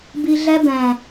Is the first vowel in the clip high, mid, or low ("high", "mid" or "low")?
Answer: high